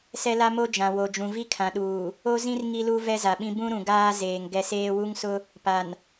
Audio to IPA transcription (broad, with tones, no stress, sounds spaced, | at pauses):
s ɛ˦ l a˦ m o˦ d͡ʒ ã˨ w o˨ d͡ʒ ũ˨ v i˦ kʰ ã˨ ɗ uː˨ | o˦ z ĩ˦ r ŋ i˦ l u˦ v ɛ˦ z a˨ ɓ ĩ˦ b ũ˦ ɾ ũ˨ ɡ aː˦ z eː˨ ŋ ɡ ɛ˨ s eː˦ w u˦ ŋ s ʊ˦ | p a˨ n